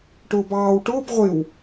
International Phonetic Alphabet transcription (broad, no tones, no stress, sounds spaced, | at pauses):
ʈ ʊː b ɑː w ʈ ʊː b ʁʷ ɪ w